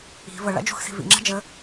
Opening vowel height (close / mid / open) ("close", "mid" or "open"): close